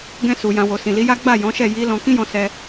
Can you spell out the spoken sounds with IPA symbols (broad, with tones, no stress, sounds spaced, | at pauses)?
ɡ ɛ̃˧ s u˨ j ã˨ w o˨ s ĩ˨ l i˨˦ j a˦ ɡ͡b a˦˨ j ɔ̃˨˦ ʃ ɛ˦˨ j i˨˦ l ɔ̃˧ k ĩ˦ j ɔ̃˧ s ɛ˧